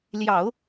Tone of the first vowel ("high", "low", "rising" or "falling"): low